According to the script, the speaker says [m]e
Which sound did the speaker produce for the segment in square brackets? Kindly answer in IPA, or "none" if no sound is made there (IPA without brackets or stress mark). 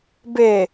b